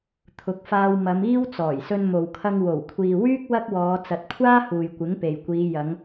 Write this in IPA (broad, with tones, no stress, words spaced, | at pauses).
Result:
t̪ʰʊ˨˥k̚faː˧w mɐ˨˧miː˥w t͡sɔː˨˩jsɵ˧nmo˨wkʰɐ˧ŋ wo˨˩wkʷʰiː˨wyː˥k̚ wɐ˥k̚wɔː˨˧ t͡sɐ˨˥t̚kʷʰaː˥ huː˨j kʷɪ˨˥ŋpe˨jkʷiː˨˧ jɐ˨˧ŋ